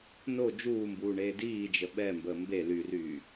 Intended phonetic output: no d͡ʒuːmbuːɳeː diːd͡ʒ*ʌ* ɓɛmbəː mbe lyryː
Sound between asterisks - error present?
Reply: yes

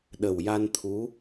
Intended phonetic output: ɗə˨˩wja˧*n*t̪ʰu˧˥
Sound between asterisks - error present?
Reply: no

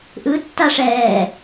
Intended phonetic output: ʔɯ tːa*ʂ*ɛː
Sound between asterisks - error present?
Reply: no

